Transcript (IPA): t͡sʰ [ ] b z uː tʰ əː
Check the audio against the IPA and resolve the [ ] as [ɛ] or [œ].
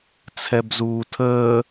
ɛ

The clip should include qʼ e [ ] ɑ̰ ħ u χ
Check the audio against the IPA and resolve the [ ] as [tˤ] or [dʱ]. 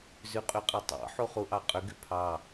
tˤ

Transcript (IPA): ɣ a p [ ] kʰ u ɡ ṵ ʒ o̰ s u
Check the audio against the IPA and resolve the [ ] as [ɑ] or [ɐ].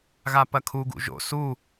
ɐ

